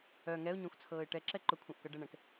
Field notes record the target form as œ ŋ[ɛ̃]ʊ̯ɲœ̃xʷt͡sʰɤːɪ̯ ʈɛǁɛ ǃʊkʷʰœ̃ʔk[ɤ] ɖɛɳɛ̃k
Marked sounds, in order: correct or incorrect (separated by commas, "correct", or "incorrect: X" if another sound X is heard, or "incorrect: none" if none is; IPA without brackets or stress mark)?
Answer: incorrect: ɛ, correct